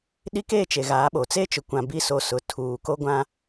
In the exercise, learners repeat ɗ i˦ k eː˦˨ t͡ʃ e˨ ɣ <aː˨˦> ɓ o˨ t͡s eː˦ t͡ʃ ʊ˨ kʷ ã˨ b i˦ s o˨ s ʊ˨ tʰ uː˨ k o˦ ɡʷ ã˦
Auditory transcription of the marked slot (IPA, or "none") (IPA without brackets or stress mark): aː˨˦